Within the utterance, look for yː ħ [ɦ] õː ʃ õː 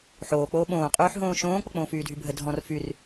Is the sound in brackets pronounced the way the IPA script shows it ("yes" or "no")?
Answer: yes